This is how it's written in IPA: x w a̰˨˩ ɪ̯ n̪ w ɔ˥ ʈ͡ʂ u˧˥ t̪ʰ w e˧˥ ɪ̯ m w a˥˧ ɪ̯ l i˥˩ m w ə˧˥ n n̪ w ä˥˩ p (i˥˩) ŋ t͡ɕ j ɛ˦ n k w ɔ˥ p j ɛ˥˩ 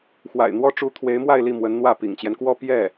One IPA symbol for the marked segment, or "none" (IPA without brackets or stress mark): ḭ˨˩